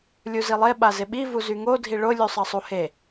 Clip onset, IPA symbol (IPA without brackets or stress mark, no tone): lʲ